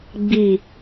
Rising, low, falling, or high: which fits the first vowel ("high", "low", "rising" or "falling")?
falling